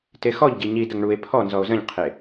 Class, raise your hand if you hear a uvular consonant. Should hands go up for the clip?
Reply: yes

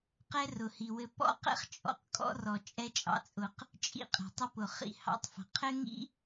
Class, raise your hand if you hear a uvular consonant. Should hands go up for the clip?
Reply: yes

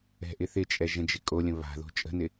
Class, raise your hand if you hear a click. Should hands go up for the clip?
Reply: no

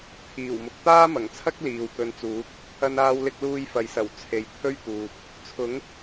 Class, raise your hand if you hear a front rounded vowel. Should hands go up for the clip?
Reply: no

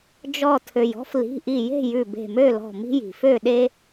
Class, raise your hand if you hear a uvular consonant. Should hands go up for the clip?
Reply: no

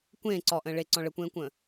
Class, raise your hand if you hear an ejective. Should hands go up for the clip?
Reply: no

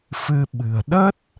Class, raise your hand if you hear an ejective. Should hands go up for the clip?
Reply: no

